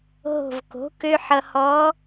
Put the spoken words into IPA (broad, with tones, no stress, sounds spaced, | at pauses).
ɦ o̤˧˩ v k o̤˩˥ k ø˧ ħ ʌ˧ h ɔ˧˥